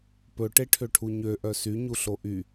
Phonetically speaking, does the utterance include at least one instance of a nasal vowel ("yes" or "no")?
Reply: no